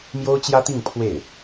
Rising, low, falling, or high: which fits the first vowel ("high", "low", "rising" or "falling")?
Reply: high